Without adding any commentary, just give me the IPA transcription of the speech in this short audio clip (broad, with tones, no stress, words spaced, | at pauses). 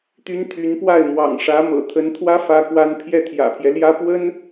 t̪y˥nt̪ʰy˧˥n pwa˥˩ɪ̯mwɑ̰˨˩ŋʂä˧˥ mɤ̰˨˩t̪ʰə˧˥nt̪ʰwä˥ fä˥kwa˥n pʰjɛ˥˩t̪ʰjä̰˨˩pʰjɛ˦ljä˥ pwə˥n